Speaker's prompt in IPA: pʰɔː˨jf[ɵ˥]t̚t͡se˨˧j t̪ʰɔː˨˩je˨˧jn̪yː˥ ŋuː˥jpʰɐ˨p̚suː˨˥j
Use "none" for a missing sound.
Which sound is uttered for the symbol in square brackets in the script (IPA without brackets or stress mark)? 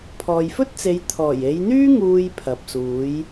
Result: ɵ˥